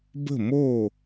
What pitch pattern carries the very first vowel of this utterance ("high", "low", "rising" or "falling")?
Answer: falling